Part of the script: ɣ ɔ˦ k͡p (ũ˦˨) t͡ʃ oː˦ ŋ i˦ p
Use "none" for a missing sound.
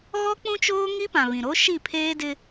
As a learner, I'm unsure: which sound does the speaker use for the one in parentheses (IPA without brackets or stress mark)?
ũ˦